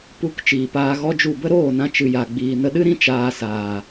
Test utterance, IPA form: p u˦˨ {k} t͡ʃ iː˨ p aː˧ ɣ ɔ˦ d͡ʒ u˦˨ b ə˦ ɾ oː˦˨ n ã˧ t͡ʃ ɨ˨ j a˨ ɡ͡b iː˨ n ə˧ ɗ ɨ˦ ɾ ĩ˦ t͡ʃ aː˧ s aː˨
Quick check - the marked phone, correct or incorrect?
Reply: correct